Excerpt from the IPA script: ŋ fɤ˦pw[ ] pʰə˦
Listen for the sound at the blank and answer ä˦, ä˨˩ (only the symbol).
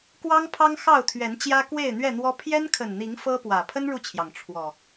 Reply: ä˨˩